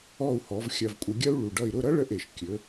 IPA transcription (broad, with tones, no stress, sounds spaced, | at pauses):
ɔ˥˩ u̯ h ɔ˩˥ v xʲ ɐ˧ v kʷʼ ə˧ ɡʲ ɐ˥ u̯ ɭ u˩ ɖ ʌ˥˩ i̯ ɾ ʊ˥˩ ɾ ʌ˥ ɭ ə˥˩ ʔ e˩ ʃ kʲ ɵ˩˥